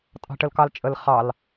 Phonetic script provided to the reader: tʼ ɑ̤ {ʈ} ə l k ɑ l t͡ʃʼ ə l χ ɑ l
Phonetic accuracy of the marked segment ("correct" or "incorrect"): correct